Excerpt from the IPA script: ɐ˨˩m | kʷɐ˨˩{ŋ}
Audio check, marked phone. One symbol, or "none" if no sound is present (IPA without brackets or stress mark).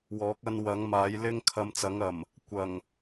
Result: ŋ